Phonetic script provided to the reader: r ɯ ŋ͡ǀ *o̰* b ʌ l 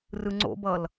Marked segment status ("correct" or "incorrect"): correct